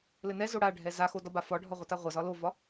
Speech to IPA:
lɘnɛzo ɽaɖʱɛ zaxo dɒbafɒɖʱɒ ʁʷɘtaʁʷazɒ lovɒ

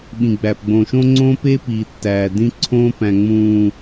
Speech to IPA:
ɓĩ˨ɡ͡bæ˨pɡ͡bõ˨ʃõ˦ ŋ͡ǀõː˦peː˦ piː˨tːæː˨ dĩ˦ǀʰõː˦pæ̃˨ ŋ͡mũː˨

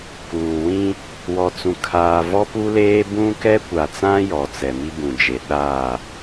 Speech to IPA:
kuː˨wĩ˦ | wɔ˨t͡sũ˨kʰaː˨ vɔ˦pu˦leː˦ bũ˦ kɛ˦kʷa˨t͡sã˦ jɔ˨t͡sɛ˨mi˦ bũ˨d͡ʒe˨ ɗaː˦˨

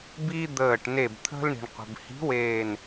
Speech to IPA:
bi˦ d̪əː˧˩ʈne˧˩bt̪ʰə̤˦l ɳi̤˩ɳqʷə̤˩bhi̤˨˥ weː˧˩n

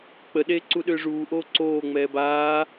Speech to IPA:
k͡pəɗeːǀuɗʏː ʐuːʔoː ǀoːŋ͡mɛː baː

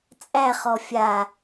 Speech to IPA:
t͡sʼæχɔ fʲa

